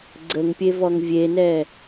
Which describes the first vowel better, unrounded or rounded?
unrounded